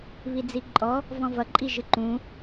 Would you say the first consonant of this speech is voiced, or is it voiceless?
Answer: voiced